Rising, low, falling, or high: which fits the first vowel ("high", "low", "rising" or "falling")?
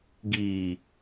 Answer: low